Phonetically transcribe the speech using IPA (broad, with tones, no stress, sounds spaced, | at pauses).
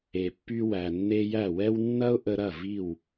e˩ pː y˧ w æ˩ nː e˧ j æ˥˩ w ɛ˥ w nː ɐ˥ ʊ̯ ʔ ə˧ ɾ ɐ˥˩ v i˥˩ w